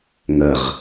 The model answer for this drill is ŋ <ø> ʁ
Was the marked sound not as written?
yes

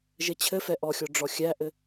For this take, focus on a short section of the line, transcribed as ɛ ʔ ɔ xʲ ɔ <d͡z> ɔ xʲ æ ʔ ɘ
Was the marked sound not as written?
yes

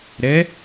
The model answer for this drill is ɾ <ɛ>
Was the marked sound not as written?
no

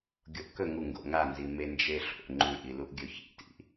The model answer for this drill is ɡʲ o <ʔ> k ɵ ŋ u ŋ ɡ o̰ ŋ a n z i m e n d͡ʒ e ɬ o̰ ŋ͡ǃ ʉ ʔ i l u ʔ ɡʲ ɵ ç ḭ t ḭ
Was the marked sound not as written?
no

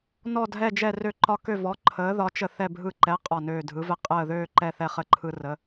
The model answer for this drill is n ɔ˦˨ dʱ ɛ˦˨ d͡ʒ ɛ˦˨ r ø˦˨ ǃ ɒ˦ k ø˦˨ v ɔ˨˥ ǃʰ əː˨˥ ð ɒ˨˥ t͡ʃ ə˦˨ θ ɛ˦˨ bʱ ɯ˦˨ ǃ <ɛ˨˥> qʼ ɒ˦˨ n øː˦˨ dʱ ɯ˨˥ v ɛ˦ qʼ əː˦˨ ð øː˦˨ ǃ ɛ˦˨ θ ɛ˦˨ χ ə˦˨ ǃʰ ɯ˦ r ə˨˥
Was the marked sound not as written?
no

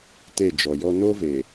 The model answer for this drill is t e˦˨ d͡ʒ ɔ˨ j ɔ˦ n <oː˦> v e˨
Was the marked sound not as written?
no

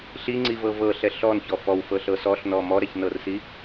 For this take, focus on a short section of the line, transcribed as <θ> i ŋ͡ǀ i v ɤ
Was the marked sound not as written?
yes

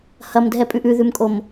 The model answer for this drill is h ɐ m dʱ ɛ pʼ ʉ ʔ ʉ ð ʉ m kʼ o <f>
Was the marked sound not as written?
yes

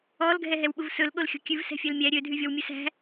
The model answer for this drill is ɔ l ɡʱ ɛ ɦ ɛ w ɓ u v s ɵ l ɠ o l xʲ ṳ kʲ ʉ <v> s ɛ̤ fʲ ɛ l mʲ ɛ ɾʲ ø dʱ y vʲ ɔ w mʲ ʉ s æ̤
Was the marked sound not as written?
no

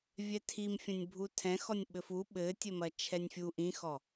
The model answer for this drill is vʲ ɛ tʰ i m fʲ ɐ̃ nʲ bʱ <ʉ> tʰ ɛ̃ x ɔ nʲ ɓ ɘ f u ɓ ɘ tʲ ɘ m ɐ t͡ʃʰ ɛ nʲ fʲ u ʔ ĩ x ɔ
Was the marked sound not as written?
yes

